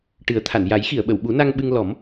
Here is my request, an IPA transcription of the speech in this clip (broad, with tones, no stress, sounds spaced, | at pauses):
ʈ ɨ˨˩˦ ə̯ t̪ʰ a˨˩˨ n j a˨˩˦ j x i˨˩˨ ə̯ ɓ ə˨˩˨ w ɓ u˨˩˦ n a˧ ŋ ɓ ɨ˧ ŋ l ɔ˨˩˦ m